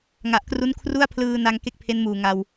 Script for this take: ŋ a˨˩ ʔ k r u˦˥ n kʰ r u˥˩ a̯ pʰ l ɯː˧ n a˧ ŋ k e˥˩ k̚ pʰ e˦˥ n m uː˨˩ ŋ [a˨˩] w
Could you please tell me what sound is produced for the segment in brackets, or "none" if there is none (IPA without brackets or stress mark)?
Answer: a˧